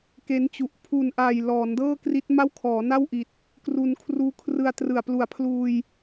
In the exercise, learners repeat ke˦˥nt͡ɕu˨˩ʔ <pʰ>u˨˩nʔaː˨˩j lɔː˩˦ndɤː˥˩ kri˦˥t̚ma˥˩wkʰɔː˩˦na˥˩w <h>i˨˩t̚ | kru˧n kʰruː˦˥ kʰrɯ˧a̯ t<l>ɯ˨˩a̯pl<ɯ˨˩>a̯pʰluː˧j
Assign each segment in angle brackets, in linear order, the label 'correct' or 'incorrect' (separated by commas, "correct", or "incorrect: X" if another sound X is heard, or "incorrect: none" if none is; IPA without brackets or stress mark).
correct, incorrect: ʔ, incorrect: r, incorrect: u˨˩